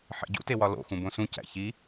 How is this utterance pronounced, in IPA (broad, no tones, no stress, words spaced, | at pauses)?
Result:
ħḛɟṵtewɒ lo̰xũ bõsũ cæ̰çi